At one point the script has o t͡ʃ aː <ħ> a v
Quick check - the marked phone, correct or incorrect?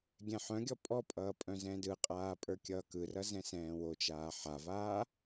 correct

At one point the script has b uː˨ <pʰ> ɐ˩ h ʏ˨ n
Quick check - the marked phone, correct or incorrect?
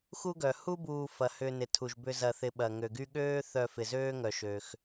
incorrect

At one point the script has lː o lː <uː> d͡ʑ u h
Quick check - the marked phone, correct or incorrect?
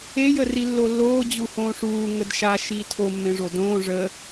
incorrect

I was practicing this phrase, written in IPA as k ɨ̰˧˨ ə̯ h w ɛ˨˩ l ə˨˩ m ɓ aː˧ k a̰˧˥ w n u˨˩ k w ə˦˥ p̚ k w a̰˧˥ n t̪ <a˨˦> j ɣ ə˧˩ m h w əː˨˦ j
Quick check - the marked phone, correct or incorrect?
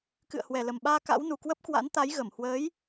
correct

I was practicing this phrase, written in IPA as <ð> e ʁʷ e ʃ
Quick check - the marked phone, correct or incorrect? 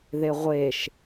correct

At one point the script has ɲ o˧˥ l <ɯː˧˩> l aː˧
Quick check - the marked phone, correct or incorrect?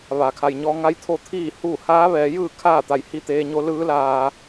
incorrect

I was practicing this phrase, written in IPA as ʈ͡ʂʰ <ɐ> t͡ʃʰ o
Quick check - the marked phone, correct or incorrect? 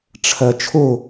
correct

